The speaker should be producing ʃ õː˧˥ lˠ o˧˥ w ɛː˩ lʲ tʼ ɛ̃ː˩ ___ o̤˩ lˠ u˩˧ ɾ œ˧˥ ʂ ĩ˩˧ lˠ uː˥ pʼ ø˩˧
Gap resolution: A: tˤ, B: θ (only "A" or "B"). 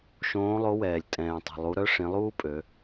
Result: A